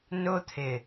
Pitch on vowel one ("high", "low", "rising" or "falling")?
high